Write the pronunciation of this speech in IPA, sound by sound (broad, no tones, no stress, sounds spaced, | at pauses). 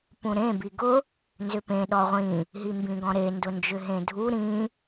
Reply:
p ũ ɾ ẽ b i ɡ ʊ | n z ʏ p ẽ ɗ ɔ ʁʷ ĩ | ɦ i m b ĩ ɡ ɔ̃ ɾ e n d ʊ n d͡ʒ ʏ ɦ ẽ dʱ u ɾ ĩ